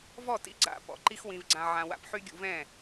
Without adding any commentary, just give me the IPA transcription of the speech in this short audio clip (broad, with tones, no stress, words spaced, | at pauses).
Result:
vɔ˦˨tḭ˧ɡ͡ǀa̰˨ pɔ̰˨ ǃi˦xwĩ˧vɡ͡ǀã˧ʕã˧ wa̰˧pħy˦ ɡʲṵ˧vɛ̃˦˨